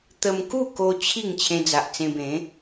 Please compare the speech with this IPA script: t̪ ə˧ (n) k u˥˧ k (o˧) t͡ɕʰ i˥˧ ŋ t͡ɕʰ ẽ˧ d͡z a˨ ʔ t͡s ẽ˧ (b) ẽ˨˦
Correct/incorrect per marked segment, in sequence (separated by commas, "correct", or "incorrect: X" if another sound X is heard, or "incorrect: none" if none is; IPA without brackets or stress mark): incorrect: m, correct, correct